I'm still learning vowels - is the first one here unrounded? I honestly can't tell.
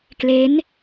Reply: yes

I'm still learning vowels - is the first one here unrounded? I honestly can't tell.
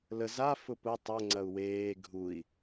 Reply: yes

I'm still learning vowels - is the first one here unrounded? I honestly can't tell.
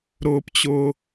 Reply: no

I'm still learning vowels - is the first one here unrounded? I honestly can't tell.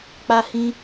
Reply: yes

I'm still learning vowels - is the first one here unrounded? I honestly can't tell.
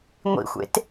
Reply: yes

